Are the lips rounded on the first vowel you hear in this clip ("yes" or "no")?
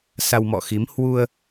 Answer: no